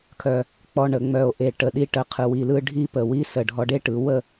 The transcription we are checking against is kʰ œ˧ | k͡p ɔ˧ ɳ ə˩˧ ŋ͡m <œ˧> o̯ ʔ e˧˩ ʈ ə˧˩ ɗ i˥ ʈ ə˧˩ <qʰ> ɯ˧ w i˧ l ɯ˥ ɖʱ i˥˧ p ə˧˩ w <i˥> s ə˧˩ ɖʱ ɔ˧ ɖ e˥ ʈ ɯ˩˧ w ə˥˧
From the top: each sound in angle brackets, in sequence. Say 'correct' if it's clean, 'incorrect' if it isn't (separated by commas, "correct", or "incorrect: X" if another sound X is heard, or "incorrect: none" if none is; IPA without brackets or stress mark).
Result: incorrect: œ˧˩, correct, correct